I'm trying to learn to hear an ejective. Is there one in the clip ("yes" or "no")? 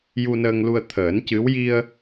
no